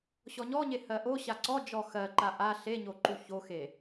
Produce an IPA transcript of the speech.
ɕ ɔ ɲ ɔ ɲ e h ɜ ʔ o ɕ a ǀ ɔ d͡ʒ ɔ x ɜ ǃ a ʔ a ɬ e ɲ o ǃ u ç o x e

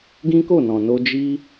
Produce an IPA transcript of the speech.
ɡ ĩ˦ k o˦˨ n ɔ̃˨ n o˧ d͡ʒ i˦

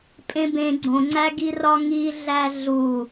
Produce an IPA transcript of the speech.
pʼ ẽ b ẽ ɡ͡ǀ õ ŋ͡ǀ æ ɡ i r ɒ ŋ i ɮ æ ɮ u

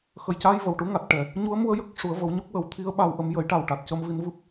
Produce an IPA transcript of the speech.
x ə˨˩ j c a˧ j v ə˨˩ w ʈ u˧˥ ŋ a˨˩ t̚ ʈ ɛ˨˩ | ɲ u˧˥ ə̯ m u˧ ə̯ j ə˦˥ k̚ ʂ u˨˩˦ ə̯ v ə˨˩˦ w ɲ o˦˥ k̚ w ə˨˩˦ w t̪ʰ i˧˥ ə̯ ɓ a˧ w ʔ ə˧˥ m j ə˨˩˦ j ʈ a˨˩ w ʈ a˨˩ t̚ c ə˧ m v i˧˥ n v ɨ˦˥ p̚

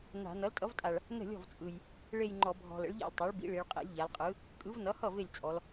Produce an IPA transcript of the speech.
n a̤˧˩˧ n ʌ˩˥ l tʼ ʌ˩˥ v tʼ a˨˩ ɭ | n ə̤˥˩ lʲ ɔ̤˥˩ v t͡sʼ ɯ˨˩ j | ɭ e˥˧ j ŋ͡ǃ ɔ˧˩˧ bʱ ɔ̤˨˩ l ə̰˩˥ ɭ ʎ a̰˥˩ lʲ tˤ a˩˥ ɭ b ḭ˩˥ ɭ i˩˧ ɭ qʼ ḛ˩˥ lʲ ʎ a˩˧ l qʼ ɯ˩˥ | kʼ ɯ˩˥ v n ʌ˩˥ h ʌ˥˩ v e˥˩ lʲ t͡sʼ ɔ˩˧ l

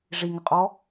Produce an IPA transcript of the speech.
ʐ i ŋ ə qʼ ɔ

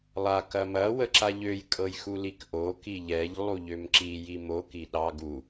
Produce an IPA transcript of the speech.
lˠ a k ɐ m ɐ w ə ǁ a ʎ ø j kʼ ɤ j x u l i k ʔ o k i ʎ ɛ ʎ lˠ u ʎ ø m ǁ i j i m o k i ɗ ɑ ɡ u

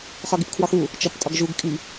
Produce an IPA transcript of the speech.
χ ɒ ɡ i p kʰ w ɒ x u | t͡ʃ ɒ p tʼ ɒ ɡ ʒ u ɡ kʼ i

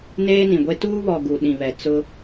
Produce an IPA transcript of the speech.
n eː˦ n ĩ˨ ɡʷ e˦ t uː˦ β ɔ˨ ɡ u˨ ɗ ĩ˨ β ɛ˨ t͡s ʊ˦

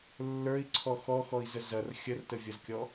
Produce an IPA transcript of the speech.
lː ə˞ i̯ ǀʰ ɔ x ɔ x ɔ i̯ z ə z ɐ r xʲ ə r t ə vʲ ɐ z kʲ ɔ

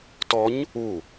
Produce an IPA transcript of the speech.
t ɔ ɲ | u

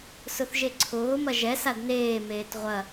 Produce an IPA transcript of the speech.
s ʊ θ ʒ e ǀʰ ʊː m ɐ ʒ ɛ s a d n eː m eː t ʁʷ ɐ

